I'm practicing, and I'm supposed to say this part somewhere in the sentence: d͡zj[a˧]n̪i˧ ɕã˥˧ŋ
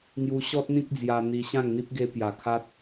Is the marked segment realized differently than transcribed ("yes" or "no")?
no